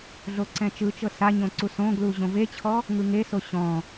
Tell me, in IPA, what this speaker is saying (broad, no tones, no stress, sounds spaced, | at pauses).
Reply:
ɮ o ǀ ɛ̃ t͡ʃ ɯ t͡ʃ ɤ s a ɲ õ ǀ u s õ ɡ l u ʑ õ v e t͡ɕʰ ɔ | ŋ ɯ ŋ e s o ɕ ɔ̃